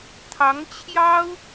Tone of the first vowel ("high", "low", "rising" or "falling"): rising